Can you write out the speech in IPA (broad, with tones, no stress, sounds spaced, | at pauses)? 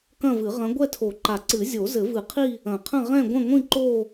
k ɐ̃˥˧ v ɨ˨˩˦ ʁ ɐ̃˧˥ ɡʷ ɛ˥˧ tʰ o˨˩˦ ǃ a˨˩˦ ǀ ɨ˨˩˦ zʲ o˨˩˦ z ɘ˨˩˦ v ɨ˨˩˦ qʰ i˥˧ | ɐ̃˨˩˦ qʰ ɐ̃˥˧ ʁ ɛ̃˥˧ ɡʷ ɐ̃˥˧ ŋʷ ĩ˥˧ ǃ o˥˧